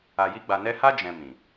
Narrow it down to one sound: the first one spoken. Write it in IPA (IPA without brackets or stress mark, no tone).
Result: a